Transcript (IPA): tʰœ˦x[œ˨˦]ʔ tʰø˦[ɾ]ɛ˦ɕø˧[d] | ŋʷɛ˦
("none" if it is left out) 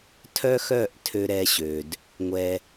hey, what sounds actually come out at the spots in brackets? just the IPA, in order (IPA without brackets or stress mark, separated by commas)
œ˦˨, ɾ, d